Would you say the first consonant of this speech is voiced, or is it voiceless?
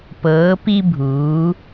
voiceless